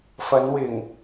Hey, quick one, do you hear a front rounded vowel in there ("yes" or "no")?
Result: no